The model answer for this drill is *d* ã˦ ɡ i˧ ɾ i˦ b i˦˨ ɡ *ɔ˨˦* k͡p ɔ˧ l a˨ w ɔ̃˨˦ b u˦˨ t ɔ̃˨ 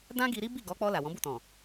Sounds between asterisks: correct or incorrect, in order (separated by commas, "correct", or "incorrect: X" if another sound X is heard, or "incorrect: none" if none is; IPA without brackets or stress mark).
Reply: correct, correct